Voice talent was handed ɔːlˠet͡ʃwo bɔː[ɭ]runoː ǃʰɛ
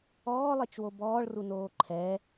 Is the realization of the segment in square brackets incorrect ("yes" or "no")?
no